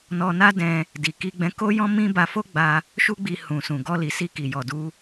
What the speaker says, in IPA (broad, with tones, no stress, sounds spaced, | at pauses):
n ɔ˧ n a˦ d ɛ̃˧ | d i˨ k i˧ ɡ͡b ɛ̃˧ k o˦ j ɔ̃˦ m ĩ˦ b a˧ f o˦ ɡ͡b a˧ | ʃ u˦ ɡ͡b i˧ h ũ˨ s ũ˨ ɡ ɔ˧ l i˨ s i˧ k i˨ j ɔ˨ d u˧